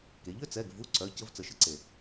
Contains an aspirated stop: no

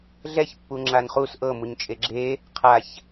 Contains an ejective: yes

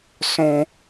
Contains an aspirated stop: no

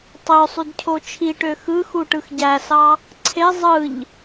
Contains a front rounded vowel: yes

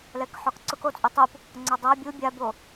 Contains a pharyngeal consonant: yes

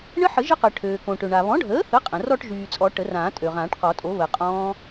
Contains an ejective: yes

